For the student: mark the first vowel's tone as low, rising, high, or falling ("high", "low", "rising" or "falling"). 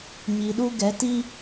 low